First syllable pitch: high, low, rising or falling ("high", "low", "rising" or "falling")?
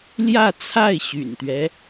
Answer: falling